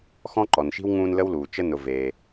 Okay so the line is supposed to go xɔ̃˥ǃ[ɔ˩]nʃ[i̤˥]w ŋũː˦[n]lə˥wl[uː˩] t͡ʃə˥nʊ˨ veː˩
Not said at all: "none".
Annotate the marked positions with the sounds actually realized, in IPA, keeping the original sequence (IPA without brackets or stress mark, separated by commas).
ɔ˩, i̤˥, n, uː˩